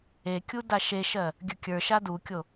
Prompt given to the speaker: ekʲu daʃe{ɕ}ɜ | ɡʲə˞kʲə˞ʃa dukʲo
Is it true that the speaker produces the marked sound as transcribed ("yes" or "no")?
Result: no